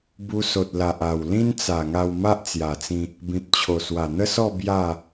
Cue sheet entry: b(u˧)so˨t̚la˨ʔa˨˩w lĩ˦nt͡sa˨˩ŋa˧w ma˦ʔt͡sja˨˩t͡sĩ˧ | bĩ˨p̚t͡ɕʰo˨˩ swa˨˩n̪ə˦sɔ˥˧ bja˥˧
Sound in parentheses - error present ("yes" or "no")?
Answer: no